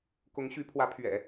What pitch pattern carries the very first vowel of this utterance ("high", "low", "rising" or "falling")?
rising